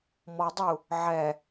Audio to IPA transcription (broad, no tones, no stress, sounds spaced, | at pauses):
m ɔ dˤ u | ʕ ɛ